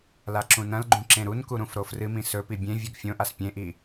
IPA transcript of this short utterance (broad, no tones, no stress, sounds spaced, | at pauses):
l a ǁ ũ n ɐ̃ l ɡ͡ǃ ũ ǁ ẽ ɾ u n k u ɾ ũ f ɾ o f r ɨ m ĩ s ɵ p i bʲ ẽ vʲ ʉ ɡ fʲ õ ʔ a s pʲ ẽ ʔ i